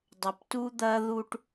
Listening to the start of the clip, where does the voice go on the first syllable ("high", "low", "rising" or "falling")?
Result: low